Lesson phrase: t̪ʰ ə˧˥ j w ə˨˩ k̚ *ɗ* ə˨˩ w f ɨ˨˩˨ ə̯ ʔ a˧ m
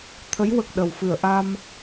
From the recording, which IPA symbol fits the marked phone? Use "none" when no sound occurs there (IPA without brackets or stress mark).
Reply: ɗ